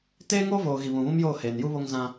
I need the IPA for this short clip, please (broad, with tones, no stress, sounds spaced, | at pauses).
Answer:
t eː˦ ŋ oː˦ v oː˨ ɣ i˨ β ũ˨ β ũ˦ m j oː˦˨ h eː˨ n j u˦ β o˦ ŋ z ã˦